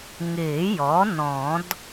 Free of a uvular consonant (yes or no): yes